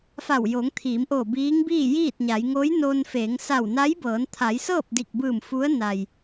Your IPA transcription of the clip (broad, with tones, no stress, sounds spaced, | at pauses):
f a˧˩ w j oː˩˧ ŋ t̪ʰ iː˩˧ m ʔ oː˧˩ b iː˧˥ ŋ b iː˥˨ j iː˥˨ t̚ ɲ a˩˧ j ŋ oː˧˥ j n oː˧ n f eː˩˧ ŋ s a˧˩ w n a˧˥ j b ɤː˩˧ n t̪ʰ a˩˧ j s ɤː˥˨ p̚ d i˧˩ k̚ b ɯː˧˩ m f u˧˥ ə̯ n a˩ j